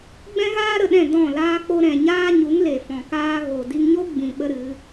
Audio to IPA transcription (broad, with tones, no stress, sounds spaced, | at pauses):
ɡ͡b ɛ̃˦ ɣ aː˦ ɾ ə˨ ɗ ɛ̃˦˨ d ɔ̃˦˨ l aː˦ k͡p o˦ ɾ ɛ̃˨ ɲ aː˦ ɲ u˨˦ ŋ l e˨ f ɔ̃˨ k aː˦ ɣ o˨ d i˧ ŋ ɲ o˦ ɡ͡b ĩ˨ ɓ ə˦ ɾ ɨ˨˦